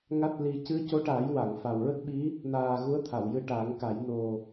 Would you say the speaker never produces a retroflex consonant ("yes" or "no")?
no